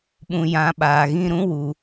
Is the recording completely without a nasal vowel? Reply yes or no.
no